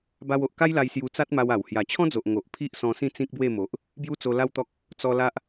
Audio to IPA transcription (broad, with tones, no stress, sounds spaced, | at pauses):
b a˧ w o˨ ʔ k a˦ j l a˧ j s j u˧ t͡s a˦ t̚ m a˧ w a˨˩ w h j a˨˩ t͡ɕʰ ɔ̃˦ d͡z o˨ ʔ ŋ o˨ ʔ pʰ i˦ ʔ s ɔ̃˧ s ĩ˥˧ t͡s ĩ˦ k̚ b w e˥˧ m o˨ ʔ | b j u˦ t͡s o˧ l a˦ w t̪ ɔ˦ k̚ | t͡s ɔ˧ l a˦ ʔ